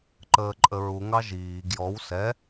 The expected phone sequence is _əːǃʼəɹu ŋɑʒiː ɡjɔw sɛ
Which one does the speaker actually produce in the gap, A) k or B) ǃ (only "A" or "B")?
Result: B